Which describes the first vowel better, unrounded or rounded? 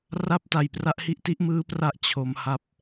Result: unrounded